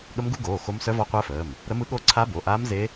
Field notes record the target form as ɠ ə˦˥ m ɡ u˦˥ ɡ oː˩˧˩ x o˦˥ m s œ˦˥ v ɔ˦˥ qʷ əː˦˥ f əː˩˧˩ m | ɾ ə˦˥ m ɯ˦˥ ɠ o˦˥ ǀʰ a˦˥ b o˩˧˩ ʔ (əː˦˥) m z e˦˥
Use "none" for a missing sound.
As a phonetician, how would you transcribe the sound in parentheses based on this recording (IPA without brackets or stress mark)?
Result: aː˦˥